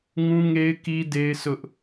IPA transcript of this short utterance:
ŋ ũ˦ ŋ e˦ ɪ̯ k i˦ d e˦ ɪ̯ s ʊ˦ ʔ

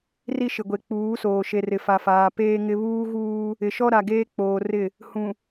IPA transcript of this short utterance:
r i˦ ʃ ɪ˨ ɡʷ e˨ k͡p uː˨˦ s oː˨ ʃ e˨ r ɪ˨ f a˨ f aː˨ p eː˦ ŋ ɪ˦ β uː˦ ɣ uː˦ | ɪ˨ ʃ ɔ˦ ɾ a˨ ɡ eː˦ k͡p oː˨ r ɪ˦˨ | h ũ˨

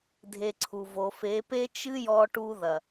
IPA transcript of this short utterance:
dʱ e˧ ǀʰ u˨ v o˨ f e˨˦ p e˦ t͡ʃ ɨ˦ j ɔ˧ ʈ u˧ ð ɐ˨

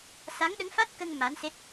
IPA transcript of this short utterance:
s a˧˥ ŋ ɗ ə˧˥ ŋ f a˦˥ t̚ k ə˧ ŋ m a˧˥ n s e˦˥ t̚

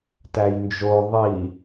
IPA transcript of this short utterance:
t æ j n d͡ʒ o ðˤ i

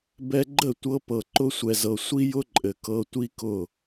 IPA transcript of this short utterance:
b ɛ˧ ɡ͡ǃ ə˦˨ tʷ ɤ˧ p ɤ˨ ǃ ʊ˧ sʷ ɛ˨ z ɤ˨ sʷ i˦ j ʊ˦ ǃʼ ɘ˨ k ɤ˧ tʷ i˦ k ʊ˦˨

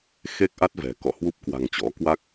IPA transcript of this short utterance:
x e˦˥ k̚ ʔ a˦˥ t̚ v ɛ̤˨˩ k ɔ̰˧˨ h w u˦˥ p̚ k w a̤˨˩ ŋ t͡ɕ ɔ̰˧˥ k w a˦˥ k̚

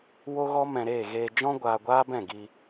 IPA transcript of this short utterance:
w o˦ ɣ ɔ˦ m ɛ̃˧ ɾ eː˦˨ ɣ eː˧ d͡ʒ ɔ̃˦ ɡʷ aː˧ ɡʷ aː˦ b ɛ̃˦˨ ɡ i˧

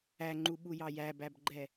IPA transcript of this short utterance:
æ ŋ͡ǃ u ɓ u j ɑ j æ b æ b ɡ͡ǃ ɛ

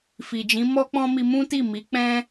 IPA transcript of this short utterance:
f i˨ d͡ʒ ĩ˨˦ m ɔ˦ k͡p ɔ̃˦ m i˧ m ũ˦ t i˦˨ m i˨˦ k͡p ɛ̃˦

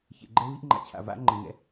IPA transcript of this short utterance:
ç ḛ˨ ɡ͡ǃ ɛ˦ v i˦ ʔ ŋ͡ǃ a̰˨ t͡ɕʰ a̰˨ v a̰˦ ŋ͡ǃ ɛ̃˨ ŋ ɛ̰˨˦

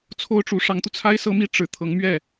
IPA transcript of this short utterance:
t͡sʰ o˥ ʊ̯ ʈ͡ʂ u˧˥ ʂ ɑ˧˥ ŋ t̪ u˧ t͡sʰ a˥ ɪ̯ s ɤ˥ m i˥ ʈ͡ʂ ɻ̩˨˩ t̪ʰ ɤ˧˥ ŋ m ɥ ɛ˥˩

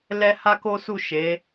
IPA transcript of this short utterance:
l ɛ˦ h a˦ k o˦ s u˦˨ ʃ e˨˦

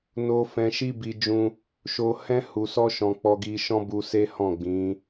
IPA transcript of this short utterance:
n o˦ f ɛ̃˧ ʃ i˦ b i˧ d͡ʒ ũ˧ | ʃ o˧ h ɛ̃˦ h u˧ s ɔ˦ ʃ ɔ̃˧ k͡p ɔ˧ ɡ i˧ ʃ ɔ̃˦ b u˧ s e˦ h ɔ̃˦˨ ɡ͡b ĩ˨˦

